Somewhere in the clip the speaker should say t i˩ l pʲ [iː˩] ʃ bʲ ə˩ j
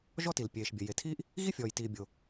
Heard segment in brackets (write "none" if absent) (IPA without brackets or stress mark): eː˩